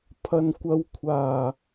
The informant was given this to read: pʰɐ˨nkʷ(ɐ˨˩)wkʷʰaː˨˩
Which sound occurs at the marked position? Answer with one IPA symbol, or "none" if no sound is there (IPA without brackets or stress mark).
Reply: ɐ˨˧